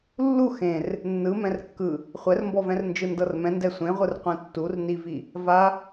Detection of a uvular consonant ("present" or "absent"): present